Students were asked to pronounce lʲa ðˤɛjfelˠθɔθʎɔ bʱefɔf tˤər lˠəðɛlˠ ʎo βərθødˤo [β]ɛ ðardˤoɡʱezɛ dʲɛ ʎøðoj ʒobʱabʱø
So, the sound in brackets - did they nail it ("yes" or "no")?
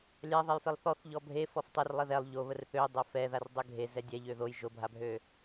no